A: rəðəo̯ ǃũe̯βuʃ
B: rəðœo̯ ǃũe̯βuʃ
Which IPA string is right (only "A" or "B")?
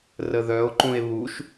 B